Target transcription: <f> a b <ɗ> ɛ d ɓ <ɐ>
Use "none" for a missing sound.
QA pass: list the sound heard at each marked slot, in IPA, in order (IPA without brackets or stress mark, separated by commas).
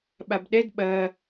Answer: ɓ, ɗ, ɐ